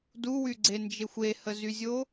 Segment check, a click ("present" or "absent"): present